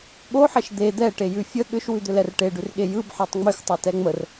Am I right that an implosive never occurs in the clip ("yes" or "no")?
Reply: no